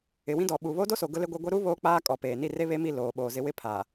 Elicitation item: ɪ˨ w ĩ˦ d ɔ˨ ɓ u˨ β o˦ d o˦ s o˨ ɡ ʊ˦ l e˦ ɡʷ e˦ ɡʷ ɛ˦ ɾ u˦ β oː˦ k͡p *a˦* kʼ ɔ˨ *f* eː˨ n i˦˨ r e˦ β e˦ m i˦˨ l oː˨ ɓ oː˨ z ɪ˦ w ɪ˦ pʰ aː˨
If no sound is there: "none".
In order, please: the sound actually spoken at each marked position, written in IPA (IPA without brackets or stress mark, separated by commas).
aː˦, p